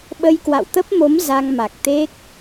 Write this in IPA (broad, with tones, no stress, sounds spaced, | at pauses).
ɓ ə˧ j k w a̰˧˨ w t̪ ə˦˥ p̚ m o˨˦ m z a˧ ŋ m a˨˩ k̚ t̪ e˦˥ k̚